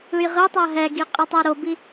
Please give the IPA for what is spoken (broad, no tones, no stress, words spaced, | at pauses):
ɯjʁɯtˤa ɦɛɡi qʼɯtˤɛɾobi